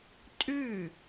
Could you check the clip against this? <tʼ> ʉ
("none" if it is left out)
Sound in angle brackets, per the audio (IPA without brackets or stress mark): tʼ